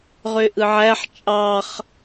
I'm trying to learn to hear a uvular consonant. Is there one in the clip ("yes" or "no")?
yes